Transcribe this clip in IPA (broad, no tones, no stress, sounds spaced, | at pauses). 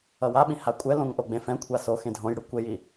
ʌ w a ɓ ĩ h a kʷʼ ɛ l õ ŋ ʔ o ɡ͡b ẽ f ɛ̃ kʷʰ a s o x ẽ dʱ õ j ɽ ɯ kʷ e j i